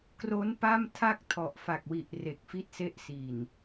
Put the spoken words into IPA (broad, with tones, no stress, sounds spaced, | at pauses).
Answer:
k r o˦˥ n p a˥˩ m tʰ a˥˩ k̚ tʰ ɔ˨˩ ʔ f a˨˩ k̚ w i˨˩ ʔ r e˨˩ k̚ f i˥˩ t̚ s e˥˩ ʔ s i˨˩ n